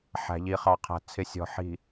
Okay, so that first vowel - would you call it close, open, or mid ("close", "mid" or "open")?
open